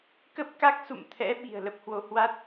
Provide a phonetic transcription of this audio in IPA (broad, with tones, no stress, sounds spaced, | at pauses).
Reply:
k ə˦˥ p̚ k a˦˥ k̚ s ṵ˧˨ m t̪ʰ ɛ̰˧˥ ɓ i̤˨˩ ə̯ l ə˦˥ p̚ h w o˨˦ h w a˦˥ t̚